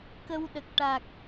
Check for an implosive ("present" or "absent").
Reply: present